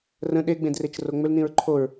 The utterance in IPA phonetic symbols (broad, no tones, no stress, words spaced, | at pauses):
rə̃ ɗeɡ͡bẽdret͡ʃ roŋ͡mʏlnĩɹ ǃʰoɹ